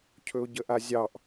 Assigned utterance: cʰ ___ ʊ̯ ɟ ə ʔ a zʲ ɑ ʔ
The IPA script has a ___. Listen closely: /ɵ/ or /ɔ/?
ɵ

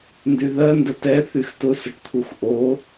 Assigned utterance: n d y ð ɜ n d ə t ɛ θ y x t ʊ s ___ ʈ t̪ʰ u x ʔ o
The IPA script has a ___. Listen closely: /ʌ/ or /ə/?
ə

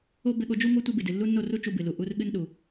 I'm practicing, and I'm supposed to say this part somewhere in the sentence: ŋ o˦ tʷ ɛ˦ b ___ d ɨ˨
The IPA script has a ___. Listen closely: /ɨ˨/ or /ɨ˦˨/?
ɨ˨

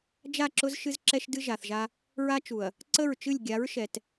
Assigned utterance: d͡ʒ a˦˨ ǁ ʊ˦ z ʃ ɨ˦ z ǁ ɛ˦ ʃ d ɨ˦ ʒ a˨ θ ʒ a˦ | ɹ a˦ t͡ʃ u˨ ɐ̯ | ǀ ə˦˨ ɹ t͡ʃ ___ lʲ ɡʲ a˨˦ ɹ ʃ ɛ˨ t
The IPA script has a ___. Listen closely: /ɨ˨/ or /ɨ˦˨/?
ɨ˦˨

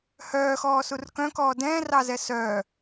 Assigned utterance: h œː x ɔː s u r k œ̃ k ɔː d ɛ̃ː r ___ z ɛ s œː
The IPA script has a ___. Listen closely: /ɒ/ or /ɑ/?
ɑ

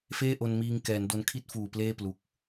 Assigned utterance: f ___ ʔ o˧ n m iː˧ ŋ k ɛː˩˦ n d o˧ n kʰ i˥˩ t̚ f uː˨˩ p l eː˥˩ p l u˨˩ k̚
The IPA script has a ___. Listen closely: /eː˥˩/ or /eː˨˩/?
eː˥˩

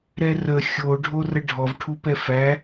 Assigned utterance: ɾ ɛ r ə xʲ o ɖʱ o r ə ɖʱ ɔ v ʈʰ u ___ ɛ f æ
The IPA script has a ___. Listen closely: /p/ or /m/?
p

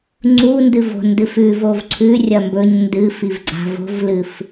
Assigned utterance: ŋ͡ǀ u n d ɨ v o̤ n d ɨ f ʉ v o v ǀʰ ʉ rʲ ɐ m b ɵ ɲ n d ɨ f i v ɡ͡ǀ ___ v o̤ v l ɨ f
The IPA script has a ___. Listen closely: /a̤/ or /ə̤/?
a̤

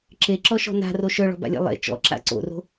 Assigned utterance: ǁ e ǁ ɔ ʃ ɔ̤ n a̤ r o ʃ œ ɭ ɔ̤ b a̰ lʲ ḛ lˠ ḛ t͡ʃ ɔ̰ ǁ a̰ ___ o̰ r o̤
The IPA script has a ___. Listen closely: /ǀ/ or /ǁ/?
ǀ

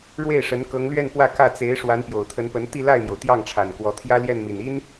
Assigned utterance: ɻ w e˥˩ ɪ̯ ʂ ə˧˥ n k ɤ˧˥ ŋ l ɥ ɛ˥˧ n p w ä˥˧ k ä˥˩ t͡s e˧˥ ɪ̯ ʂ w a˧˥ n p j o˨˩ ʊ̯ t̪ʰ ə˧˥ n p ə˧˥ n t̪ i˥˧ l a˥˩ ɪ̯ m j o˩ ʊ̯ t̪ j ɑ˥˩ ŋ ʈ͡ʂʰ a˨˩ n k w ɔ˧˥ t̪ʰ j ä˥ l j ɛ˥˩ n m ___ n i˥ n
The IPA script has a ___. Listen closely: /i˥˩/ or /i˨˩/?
i˨˩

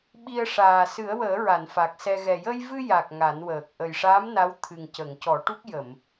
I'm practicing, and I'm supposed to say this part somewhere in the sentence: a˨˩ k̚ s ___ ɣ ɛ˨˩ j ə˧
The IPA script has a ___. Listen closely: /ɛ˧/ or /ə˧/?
ɛ˧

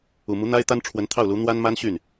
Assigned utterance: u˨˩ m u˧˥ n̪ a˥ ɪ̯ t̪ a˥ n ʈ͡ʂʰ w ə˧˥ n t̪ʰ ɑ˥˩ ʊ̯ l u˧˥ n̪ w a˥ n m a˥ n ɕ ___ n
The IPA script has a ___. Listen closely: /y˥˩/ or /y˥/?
y˥˩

